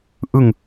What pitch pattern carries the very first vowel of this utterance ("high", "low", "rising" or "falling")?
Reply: low